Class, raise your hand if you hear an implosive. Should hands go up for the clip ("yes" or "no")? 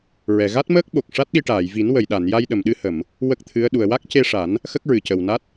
yes